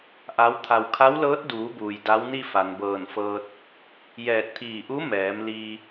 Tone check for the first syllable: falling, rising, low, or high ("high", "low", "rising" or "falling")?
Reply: rising